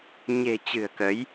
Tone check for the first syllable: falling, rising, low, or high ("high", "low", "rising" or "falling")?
low